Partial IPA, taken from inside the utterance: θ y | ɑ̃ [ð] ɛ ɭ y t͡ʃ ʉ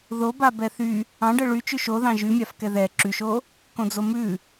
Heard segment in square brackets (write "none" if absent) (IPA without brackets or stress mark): ɖ